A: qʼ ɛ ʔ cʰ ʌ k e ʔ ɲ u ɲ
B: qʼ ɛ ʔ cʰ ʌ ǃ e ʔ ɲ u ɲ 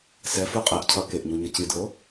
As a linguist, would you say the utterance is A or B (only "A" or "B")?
A